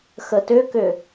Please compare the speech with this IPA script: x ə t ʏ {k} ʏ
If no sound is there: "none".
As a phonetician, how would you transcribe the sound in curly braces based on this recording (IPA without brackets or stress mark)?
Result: k